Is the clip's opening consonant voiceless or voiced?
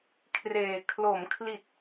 voiceless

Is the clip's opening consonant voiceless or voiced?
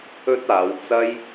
voiceless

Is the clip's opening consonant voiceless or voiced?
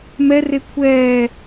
voiced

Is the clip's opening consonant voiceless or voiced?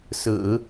voiceless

